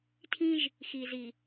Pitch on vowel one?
high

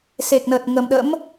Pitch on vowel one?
low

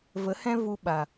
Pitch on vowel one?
rising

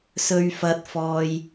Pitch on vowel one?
high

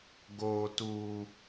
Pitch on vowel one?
high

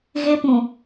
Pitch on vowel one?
high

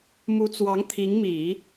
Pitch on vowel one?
rising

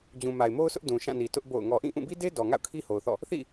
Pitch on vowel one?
low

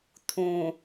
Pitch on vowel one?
low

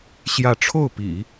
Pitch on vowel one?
falling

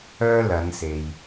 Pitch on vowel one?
high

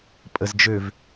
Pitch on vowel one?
low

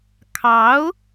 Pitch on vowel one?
rising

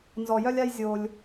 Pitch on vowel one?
low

